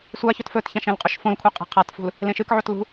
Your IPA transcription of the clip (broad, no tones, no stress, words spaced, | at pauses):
sʷaçɵt fɵtçãʃ ẽlqʼɵʃfõlkʷʰe qʼe̤qʰatfṳl | lẽʃɨkʕot lṳ